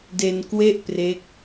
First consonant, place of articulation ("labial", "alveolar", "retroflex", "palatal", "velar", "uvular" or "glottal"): alveolar